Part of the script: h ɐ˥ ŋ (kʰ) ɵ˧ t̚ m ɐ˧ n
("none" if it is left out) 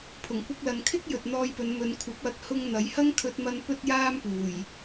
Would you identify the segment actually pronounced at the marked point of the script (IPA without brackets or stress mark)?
kʰ